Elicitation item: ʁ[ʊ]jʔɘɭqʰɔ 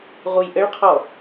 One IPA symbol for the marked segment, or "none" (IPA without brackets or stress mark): u